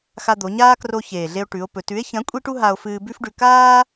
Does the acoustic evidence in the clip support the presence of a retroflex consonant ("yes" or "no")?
yes